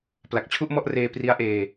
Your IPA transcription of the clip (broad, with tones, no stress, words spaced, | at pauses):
pla˨˩k̚t͡ɕʰu˥˩ʔmɔ˥˩ʔreː˧ pri˦˥a̯ʔeː˧